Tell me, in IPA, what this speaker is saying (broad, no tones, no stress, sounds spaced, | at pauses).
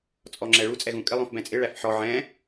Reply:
t͡sʼ ɔ ŋ͡ǁ ɛ ɭ u t͡sʼ ɛ ɣ ũ kʼ ɪ lˠ ũ f b ɛ̃ t͡sʼ ɪ ɭ æ f ħ ɔ ʕ ɛ̃